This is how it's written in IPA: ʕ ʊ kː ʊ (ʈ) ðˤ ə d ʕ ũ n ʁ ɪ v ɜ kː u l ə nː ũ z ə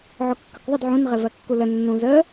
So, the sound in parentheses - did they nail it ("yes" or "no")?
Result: no